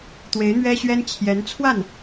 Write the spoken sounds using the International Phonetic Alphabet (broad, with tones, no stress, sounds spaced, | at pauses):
t̪ w e˧˥ ɪ̯ n̪ ɥ ɛ˥ ɕ ɥ ɛ˥ n t͡ɕʰ j ɛ˧˥ n t͡sʰ w a˥˩ n